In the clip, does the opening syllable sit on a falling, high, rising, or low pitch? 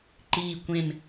falling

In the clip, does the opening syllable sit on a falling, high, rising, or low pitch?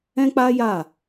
high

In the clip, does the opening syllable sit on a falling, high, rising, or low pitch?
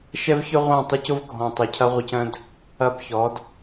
high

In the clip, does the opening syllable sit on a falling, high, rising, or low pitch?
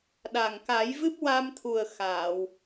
low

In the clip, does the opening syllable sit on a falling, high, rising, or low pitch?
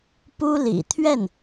high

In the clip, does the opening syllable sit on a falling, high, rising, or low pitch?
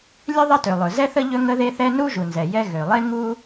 high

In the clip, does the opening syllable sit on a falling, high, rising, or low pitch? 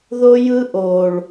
high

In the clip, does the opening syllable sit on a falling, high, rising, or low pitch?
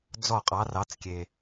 falling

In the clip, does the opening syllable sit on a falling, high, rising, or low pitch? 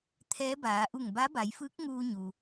rising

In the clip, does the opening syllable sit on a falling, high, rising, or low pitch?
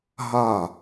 falling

